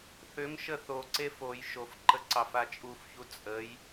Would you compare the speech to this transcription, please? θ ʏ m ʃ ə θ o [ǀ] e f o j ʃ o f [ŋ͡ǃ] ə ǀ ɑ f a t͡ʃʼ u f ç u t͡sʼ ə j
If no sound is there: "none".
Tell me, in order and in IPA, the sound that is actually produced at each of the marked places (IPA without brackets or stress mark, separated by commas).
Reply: ǀ, ǃ